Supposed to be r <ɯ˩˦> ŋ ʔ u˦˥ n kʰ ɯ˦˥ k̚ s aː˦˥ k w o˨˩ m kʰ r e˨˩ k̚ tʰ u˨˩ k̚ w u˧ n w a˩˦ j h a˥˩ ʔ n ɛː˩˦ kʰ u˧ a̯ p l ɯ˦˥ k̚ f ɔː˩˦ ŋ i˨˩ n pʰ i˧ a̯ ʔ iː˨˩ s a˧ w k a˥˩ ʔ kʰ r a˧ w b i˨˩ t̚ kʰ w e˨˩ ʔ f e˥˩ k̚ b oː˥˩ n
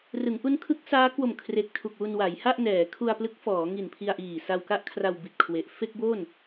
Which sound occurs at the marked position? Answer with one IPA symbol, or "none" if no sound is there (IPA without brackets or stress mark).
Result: ɯ˩˦